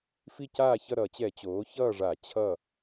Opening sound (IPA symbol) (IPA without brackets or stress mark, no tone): f